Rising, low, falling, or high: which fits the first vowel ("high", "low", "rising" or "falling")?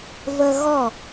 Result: high